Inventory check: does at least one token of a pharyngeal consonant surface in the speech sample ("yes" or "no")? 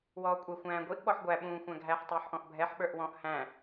yes